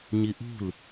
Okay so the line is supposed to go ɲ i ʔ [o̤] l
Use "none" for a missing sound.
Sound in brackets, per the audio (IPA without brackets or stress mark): ṳ